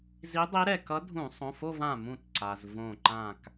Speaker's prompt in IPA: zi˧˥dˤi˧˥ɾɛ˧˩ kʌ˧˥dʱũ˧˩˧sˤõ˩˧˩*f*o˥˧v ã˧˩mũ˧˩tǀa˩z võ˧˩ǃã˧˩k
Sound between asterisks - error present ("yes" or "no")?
no